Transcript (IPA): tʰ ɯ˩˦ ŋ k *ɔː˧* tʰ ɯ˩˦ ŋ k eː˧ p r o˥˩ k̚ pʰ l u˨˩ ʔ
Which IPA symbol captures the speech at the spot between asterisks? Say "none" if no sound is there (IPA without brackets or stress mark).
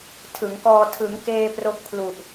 ɔː˧